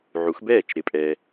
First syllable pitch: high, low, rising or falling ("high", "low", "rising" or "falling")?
rising